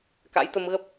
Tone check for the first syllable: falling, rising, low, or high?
rising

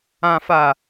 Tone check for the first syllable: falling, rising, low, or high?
high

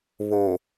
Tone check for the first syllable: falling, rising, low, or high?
low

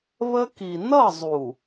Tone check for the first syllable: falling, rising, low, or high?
high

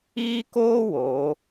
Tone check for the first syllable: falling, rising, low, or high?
high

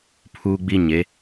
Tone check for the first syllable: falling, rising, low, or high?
high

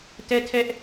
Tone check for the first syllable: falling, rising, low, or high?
high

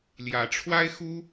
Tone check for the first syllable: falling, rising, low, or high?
rising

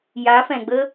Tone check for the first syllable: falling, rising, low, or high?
rising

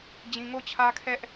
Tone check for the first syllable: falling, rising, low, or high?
low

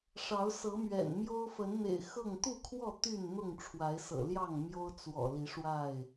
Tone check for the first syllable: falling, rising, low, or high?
rising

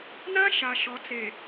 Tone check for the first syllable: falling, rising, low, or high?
high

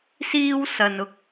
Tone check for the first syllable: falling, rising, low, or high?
high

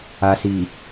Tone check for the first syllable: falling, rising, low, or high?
low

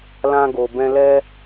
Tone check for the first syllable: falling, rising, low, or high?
high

